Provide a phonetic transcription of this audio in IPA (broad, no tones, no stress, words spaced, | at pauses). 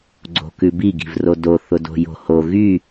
ɡ͡ǀo̤kʉbi ɡi̤vrodo θʊdo̤jo̤ho ɣy